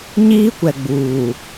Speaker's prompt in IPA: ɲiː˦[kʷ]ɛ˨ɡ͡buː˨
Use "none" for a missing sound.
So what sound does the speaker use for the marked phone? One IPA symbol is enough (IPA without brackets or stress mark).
kʷ